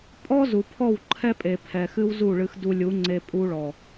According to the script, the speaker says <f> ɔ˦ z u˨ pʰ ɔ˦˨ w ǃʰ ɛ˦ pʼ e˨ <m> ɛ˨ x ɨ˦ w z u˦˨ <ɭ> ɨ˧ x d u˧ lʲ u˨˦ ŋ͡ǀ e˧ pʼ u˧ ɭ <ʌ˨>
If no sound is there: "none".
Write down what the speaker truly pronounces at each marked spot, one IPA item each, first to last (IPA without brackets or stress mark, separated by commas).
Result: pʼ, pʰ, ɭ, ɔ˨